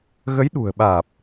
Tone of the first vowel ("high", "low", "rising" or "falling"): rising